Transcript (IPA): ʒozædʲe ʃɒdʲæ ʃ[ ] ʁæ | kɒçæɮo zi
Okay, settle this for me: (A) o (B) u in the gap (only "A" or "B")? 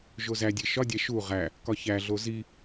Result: B